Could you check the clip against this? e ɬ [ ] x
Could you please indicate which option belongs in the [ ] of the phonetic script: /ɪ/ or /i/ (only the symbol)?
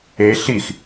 i